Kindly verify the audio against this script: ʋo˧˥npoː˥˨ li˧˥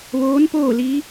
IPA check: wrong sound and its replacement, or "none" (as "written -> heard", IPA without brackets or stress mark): o˧˥ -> oː˧˥